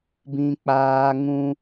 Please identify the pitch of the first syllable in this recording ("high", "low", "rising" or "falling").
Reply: high